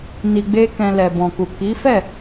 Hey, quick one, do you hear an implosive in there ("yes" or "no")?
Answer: no